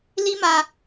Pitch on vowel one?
high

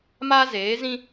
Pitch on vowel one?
high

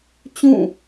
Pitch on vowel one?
falling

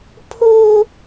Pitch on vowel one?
high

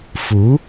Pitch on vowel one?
rising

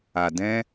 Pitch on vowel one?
low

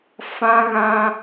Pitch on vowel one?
high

